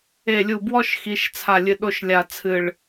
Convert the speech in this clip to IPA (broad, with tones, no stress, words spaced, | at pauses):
e˨˩lʲu˨˩bwɔ˧ʃ xi˩˧ʃt͡sʰa˨˩lʲɨ˨˩ ɗo˧ʃlʲa˨˩t͡sʰɨ˨˩ɭ